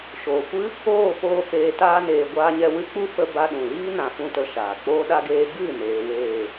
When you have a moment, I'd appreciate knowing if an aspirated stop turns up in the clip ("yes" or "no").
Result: no